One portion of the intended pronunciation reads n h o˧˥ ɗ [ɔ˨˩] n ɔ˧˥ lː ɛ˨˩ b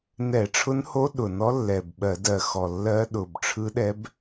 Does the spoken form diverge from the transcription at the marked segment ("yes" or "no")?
yes